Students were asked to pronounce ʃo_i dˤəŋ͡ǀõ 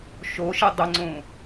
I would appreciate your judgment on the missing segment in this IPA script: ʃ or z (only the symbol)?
ʃ